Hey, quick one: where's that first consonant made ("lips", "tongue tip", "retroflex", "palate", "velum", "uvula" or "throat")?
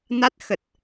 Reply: tongue tip